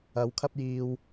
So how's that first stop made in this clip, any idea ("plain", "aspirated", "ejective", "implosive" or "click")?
aspirated